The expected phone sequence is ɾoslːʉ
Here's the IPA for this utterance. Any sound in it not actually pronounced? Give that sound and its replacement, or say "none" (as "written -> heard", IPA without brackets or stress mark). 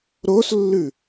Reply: none